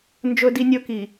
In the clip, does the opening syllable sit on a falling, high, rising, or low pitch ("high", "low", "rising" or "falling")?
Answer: high